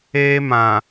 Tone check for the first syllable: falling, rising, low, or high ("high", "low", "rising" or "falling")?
high